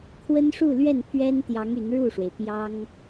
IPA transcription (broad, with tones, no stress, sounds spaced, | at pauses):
kʰ w ə˥ n ʂ u˥˧ l ɥ ɛ˥˩ n pʰ ɥ ɛ˥ n t̪ j ɑ˧˥ ŋ y˧˥ n ɻ u˥˩ ʂ w e˩ ɪ̯ p j ɑ˥ ŋ